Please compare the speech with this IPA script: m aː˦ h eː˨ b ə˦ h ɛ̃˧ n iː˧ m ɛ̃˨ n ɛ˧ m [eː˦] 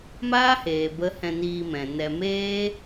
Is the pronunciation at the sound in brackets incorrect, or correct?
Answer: correct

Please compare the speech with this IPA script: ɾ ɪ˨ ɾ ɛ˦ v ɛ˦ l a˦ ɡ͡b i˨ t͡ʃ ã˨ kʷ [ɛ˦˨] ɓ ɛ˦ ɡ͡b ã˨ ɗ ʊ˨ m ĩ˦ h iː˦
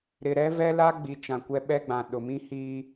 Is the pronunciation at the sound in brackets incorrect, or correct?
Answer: incorrect: ɛ˦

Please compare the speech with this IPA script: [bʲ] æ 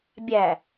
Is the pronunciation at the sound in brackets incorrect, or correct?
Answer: correct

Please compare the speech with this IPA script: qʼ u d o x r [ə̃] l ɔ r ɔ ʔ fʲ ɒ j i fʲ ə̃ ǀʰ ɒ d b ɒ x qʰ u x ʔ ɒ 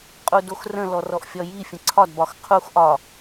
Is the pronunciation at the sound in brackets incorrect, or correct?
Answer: correct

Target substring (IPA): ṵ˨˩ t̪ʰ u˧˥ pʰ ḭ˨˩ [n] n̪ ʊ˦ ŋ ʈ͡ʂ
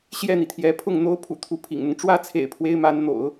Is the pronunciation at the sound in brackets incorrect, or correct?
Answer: incorrect: ŋ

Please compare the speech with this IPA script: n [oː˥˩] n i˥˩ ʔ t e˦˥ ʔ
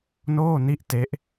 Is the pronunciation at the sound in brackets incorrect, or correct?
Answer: correct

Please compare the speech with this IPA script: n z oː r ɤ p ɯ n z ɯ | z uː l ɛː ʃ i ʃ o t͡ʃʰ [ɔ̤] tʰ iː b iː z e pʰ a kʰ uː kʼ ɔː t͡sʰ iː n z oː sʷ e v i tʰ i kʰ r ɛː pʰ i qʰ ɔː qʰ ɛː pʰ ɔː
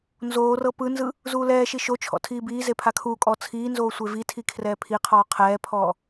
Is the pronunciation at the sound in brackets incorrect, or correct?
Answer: incorrect: ɔ̰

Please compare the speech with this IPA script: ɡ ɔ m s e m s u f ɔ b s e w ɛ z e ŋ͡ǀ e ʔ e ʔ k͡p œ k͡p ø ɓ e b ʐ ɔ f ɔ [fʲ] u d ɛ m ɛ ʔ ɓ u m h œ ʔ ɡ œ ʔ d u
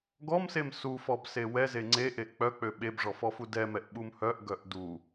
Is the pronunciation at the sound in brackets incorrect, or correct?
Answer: incorrect: f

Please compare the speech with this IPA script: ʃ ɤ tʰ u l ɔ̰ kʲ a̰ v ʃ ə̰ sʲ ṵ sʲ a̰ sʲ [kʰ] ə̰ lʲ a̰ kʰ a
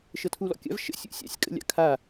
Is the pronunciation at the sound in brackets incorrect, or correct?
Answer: incorrect: kʼ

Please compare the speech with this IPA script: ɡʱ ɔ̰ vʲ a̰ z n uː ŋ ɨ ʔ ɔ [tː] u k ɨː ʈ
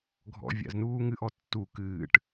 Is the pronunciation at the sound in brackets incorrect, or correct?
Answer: correct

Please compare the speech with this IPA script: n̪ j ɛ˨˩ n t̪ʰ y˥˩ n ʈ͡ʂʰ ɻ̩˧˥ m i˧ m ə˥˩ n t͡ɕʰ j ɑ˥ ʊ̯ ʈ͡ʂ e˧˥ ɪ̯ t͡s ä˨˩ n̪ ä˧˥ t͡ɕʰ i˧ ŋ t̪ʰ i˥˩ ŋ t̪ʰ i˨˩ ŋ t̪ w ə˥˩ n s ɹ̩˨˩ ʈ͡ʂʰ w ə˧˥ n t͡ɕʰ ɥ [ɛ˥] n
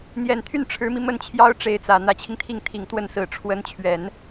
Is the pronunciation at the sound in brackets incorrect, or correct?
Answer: incorrect: ɛ˨˩˦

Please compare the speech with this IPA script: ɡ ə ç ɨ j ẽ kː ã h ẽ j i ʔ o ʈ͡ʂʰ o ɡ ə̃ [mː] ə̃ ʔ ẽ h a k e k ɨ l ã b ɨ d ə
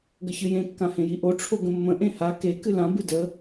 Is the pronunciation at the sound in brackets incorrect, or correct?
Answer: correct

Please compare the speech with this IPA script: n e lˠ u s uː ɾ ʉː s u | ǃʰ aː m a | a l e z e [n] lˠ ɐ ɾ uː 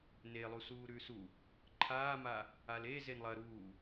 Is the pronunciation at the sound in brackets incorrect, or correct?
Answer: correct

